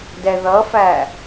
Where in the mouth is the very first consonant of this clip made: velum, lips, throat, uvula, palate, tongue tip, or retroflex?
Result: tongue tip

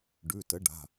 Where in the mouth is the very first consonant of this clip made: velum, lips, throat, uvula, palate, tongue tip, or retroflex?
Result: retroflex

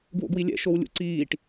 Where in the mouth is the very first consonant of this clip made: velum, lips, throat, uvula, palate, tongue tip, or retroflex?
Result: velum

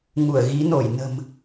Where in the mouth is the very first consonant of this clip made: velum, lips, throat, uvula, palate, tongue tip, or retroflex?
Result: velum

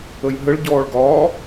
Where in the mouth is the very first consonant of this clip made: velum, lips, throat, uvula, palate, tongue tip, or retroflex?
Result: palate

